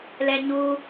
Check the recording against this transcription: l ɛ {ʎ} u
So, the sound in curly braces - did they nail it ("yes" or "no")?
no